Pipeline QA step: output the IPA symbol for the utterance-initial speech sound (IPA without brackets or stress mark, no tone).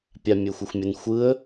pʲ